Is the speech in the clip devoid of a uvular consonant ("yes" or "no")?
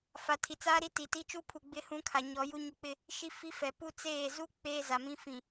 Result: yes